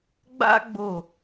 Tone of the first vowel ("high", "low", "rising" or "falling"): high